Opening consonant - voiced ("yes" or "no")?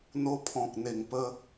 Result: yes